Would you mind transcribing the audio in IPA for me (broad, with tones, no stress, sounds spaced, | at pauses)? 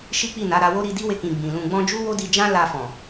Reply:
ʃ i˦ k͡p i˦˨ n a˨˦ ɾ a˧ w o˦ ɾ i˧ d i˦ w e˧ k ĩ˨ ɡ͡b ĩ˨ l ũ˧ ɡ͡b ɔ̃˦ d͡ʒ u˦ w o˦ d i˧ d͡ʒ ã˦ l a˧ f ɔ̃˨